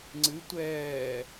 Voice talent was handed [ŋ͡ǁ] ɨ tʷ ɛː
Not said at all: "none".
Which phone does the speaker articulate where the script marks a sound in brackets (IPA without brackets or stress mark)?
ŋ͡ǀ